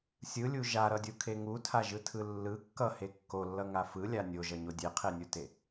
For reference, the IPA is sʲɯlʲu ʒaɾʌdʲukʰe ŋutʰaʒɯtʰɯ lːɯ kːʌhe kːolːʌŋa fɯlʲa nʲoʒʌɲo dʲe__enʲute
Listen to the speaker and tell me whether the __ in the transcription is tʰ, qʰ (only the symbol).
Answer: qʰ